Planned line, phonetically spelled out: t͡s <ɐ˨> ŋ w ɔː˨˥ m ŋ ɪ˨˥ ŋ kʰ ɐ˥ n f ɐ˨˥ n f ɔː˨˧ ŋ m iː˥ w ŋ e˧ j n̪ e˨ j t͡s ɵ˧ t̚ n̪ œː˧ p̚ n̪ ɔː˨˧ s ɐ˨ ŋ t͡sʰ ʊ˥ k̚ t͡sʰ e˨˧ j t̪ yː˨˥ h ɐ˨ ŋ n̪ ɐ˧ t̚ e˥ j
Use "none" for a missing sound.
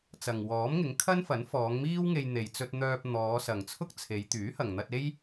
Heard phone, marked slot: ɐ˨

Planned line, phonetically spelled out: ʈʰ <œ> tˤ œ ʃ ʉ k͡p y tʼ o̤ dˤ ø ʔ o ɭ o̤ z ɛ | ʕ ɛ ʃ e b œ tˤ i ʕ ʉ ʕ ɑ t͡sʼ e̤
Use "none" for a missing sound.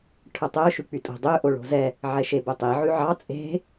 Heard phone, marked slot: œ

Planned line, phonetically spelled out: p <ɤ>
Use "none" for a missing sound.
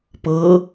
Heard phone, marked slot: ɤ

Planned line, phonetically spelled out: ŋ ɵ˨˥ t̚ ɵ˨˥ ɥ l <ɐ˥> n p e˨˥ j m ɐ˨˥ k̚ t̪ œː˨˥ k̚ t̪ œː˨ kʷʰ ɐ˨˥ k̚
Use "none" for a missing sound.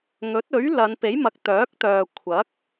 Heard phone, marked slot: ɐ˨˧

